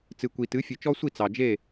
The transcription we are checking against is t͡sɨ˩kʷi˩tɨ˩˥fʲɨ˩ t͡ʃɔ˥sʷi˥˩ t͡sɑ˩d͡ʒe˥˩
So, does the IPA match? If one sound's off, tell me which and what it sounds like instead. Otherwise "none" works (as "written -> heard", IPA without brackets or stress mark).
none